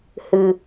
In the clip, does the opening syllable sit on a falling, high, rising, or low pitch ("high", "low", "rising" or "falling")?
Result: low